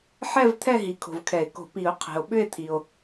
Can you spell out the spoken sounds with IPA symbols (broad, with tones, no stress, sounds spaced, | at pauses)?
ħ ɛ˥˧ v t̪ʰ ɛ˥˧ ɦ i˨ kʰ o̤˨ v kʰ ɛ˨˩˦ e̯ k o̤˨˩˦ p i˨˩˦ o̯ qʰ ɛ̤˨ o̯ ɓ ʏ˥˧ e̯ t̪ʰ i˨ o̯